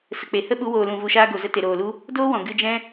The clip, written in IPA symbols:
s ə˨ k͡p e˨ h ə˦ ɓ u˨˦ w oː˨ l ũ˨ v u˨ ʃ aː˧ ɡ o˨ z ə˧ t e˨ ɾ oː˨ l u˦ | d oː˦ w ɔ̃˨ ɡ ɨ˧ d͡ʒ ɛ̃˦

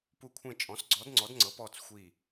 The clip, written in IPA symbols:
p u˧˩ kʷʰ ẽ˧˩ t͡ʃʼ ɔ̃˩˥ s ɡ͡ǀ ɔ˩˥ d ŋ͡ǀ ɔ˩˥ d ŋ͡ǀ ɤ˩˥ p ɔː˧˩ t͡s xʷ i˧˩

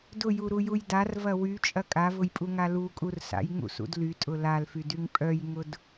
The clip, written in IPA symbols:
d ʊ j u ɾ u j u j d a r v ɐ w y t͡ʃʼ ɐ kʼ a v ʊ j pʼ u ŋ a l u kʼ u r s a̰ j ŋ ṵ s ṵ d l y tʼ ʊ l a l f y d y ŋ pʼ œ j ŋ ʊ d

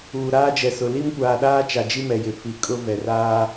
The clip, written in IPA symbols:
uː˨ ɾ aː˦ d͡ʒ ɛ˨ s ʊ˨ l i˦ m kʷ aː˨ ɗ aː˦ t͡ʃ a˨ d͡ʒ i˦ m ɛ˨ j ɪ˨ f i˨ kʼ ʊ˦ v ɛ˨ r aː˦

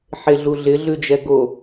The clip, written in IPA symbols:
ħ e ɮ u ɮ ɪ ɮ ʉ d͡ʒ ɛ ɡ o

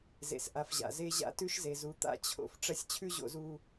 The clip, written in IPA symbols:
z ḛ˨ s ʔ a˨ f ʑ a̰˨ z e˦ ʑ a̰˦ t ʉ˦ ʃ z e˨ z u˨˦ t̪ a̰˦˨ t͡ɕʰ o̰˨ f ʈ͡ʂ ɐ˦ sʲ t͡ɕʰ ʉ˦ ʑ o̰˨ z u˨

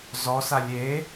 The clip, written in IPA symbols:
z ɔ s a lʲ e

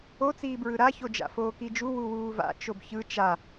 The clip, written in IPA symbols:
o t͡s iː b ɹ ɯ ɾ a ç o d͡ʒ a̰ f oː k i d͡ʒ u w u w uː v a̰ t͡ʃ o b ç ɯ t͡ʃ a

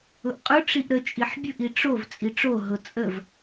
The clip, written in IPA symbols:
ʊ ʔ qʼ ʊ ʈ͡ʂ i ʔ ɾ ə t͡ʃʼ i ħ bʲ ʊ ʔ i ʈ͡ʂ o v t͡sʼ i ʈ͡ʂ o ɦ ʊ t͡sʼ ə v

